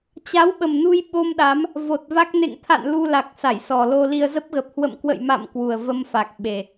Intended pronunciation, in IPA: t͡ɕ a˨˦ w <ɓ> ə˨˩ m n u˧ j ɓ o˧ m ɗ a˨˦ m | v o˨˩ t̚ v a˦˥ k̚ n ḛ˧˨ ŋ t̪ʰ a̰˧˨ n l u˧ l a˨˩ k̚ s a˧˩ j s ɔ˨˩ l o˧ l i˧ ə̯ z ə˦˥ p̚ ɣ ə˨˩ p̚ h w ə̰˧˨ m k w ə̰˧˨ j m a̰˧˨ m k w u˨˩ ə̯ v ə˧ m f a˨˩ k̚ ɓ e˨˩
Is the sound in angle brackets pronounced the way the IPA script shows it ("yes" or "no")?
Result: yes